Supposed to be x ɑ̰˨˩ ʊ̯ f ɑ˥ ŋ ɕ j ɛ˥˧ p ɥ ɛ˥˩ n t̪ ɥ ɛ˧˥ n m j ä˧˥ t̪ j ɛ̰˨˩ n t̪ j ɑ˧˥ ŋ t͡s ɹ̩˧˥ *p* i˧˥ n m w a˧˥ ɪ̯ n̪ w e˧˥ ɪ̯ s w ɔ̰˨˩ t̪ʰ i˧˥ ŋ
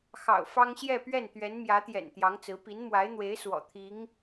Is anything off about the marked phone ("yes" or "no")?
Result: no